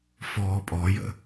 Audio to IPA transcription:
f ɔː pʼ ɔ j ə̰

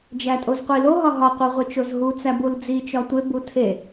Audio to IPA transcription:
d͡ʒ æ tʼ o z qʷ i l o ɦ ɒ ɦ ɒ qʷ e ʁʷ i t͡ʃ o z ɦ u t͡s æ b u l d͡z i t͡ʃ ɒ tʷ e b u tʰ e

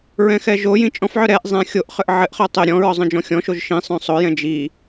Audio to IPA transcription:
ɹ ɛ̃ x ɛ ʒ o j ĩ t͡ʃʼ ɔ̃ f ʕ œ ɾ ɛ ʔ zˤ ɛ̃ xʲ o ʔ χ ʏ ʔ ʕ ɘ ʔ χ œ tˤ ʏ ɾʲ ɔ̃ ɹ ɔ zˤ œ̃ d͡ʒ ɔ̃ xʲ ɔ̃ ʃ o ʒ ʃ ĩ sˤ œ̃ sˤ o j ɛ̃ d͡ʒ i

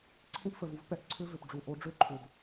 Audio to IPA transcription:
ǀʰ ẽ˦ p f ə˨ v u˦ v p ɛ˦ ʔ ǀʰ ʏ˦ v ʏ˨ p ɖ͡ʐ u˨ ʔ o˨˦ ɖ͡ʐ ø˦ ǃʰ ʏ˨ b

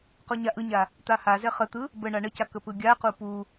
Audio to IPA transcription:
q o ɲ a ʔ ɯ ɲ a | t̪ a h a z ɛ χ ə t̪ ɯ | b ə ɳ a ɳ ə c a k ə p ɯ ɡʲ a q u p u

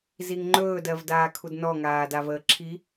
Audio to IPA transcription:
z i ŋ ŋ͡ǃ ɵː d ɜ v d aː kʰ u d n ɔ ŋ aː d a v əː ǁʰ i

